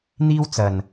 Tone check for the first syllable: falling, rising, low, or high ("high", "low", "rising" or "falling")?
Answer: high